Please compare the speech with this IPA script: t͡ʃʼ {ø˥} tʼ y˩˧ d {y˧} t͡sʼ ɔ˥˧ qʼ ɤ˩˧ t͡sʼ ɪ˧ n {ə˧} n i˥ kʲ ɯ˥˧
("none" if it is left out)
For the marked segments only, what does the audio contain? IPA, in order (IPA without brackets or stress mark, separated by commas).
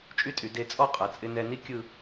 y˥, e˧, ɛ˧